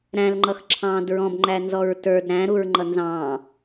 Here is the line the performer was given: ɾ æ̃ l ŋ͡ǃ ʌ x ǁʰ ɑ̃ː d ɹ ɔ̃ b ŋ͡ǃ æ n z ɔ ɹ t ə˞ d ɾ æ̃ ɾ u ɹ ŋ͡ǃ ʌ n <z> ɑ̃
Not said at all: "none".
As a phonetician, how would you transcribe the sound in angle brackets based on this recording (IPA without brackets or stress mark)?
z